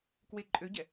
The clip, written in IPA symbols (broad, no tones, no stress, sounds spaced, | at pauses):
k w e ǃʼ ø ɟ ɛ